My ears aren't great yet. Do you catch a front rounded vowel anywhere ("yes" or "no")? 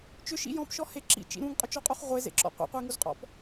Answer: yes